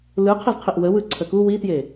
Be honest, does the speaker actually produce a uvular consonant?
yes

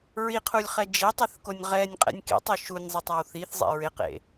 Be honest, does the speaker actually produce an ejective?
yes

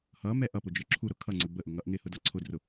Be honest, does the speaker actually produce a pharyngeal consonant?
no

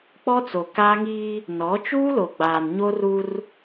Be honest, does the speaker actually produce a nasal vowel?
no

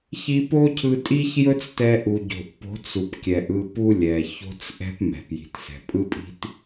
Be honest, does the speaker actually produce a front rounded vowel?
no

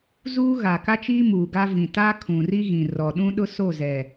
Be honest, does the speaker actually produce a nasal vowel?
yes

